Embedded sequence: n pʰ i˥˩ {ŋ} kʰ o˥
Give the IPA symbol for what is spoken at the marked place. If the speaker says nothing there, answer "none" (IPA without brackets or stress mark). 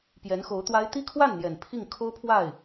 ŋ